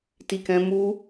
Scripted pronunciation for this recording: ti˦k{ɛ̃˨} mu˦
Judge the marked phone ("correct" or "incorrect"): incorrect